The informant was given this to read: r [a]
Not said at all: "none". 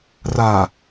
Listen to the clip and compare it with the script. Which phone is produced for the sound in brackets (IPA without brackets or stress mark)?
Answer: a